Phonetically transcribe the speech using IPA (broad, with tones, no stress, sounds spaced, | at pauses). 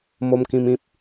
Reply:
m o˦ m k ĩ˦ m ĩ˦ p̚